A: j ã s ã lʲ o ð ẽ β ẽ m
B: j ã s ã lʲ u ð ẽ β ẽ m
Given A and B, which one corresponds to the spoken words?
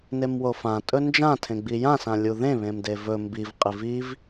B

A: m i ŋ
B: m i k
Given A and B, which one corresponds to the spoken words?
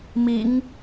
A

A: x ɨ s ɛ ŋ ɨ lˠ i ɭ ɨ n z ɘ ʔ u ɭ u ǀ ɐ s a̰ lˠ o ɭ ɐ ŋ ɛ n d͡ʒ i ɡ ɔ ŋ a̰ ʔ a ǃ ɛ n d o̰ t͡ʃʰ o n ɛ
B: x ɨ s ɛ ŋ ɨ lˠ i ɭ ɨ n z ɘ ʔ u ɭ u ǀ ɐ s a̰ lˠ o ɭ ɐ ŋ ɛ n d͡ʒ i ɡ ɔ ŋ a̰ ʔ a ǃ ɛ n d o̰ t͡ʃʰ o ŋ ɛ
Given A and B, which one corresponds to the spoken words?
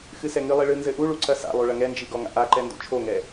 B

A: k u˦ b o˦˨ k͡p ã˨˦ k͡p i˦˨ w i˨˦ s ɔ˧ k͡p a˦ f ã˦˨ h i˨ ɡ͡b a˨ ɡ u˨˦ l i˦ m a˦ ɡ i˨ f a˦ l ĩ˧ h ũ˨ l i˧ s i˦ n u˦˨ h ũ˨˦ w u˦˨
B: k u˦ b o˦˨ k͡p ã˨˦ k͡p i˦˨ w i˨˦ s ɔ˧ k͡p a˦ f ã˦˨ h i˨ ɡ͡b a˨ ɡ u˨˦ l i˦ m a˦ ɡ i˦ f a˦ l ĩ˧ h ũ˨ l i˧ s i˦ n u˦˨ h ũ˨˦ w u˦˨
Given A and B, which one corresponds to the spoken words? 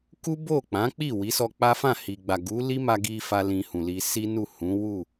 B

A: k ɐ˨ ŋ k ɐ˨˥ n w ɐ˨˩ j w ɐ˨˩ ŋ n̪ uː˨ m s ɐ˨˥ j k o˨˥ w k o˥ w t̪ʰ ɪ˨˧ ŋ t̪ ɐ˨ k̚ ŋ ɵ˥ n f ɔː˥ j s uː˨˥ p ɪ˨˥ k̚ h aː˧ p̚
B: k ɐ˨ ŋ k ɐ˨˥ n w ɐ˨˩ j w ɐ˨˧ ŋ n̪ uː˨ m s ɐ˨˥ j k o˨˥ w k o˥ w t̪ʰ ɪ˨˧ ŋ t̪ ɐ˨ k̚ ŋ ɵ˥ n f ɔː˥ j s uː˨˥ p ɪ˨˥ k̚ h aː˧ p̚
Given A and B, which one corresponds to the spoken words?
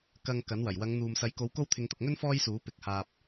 B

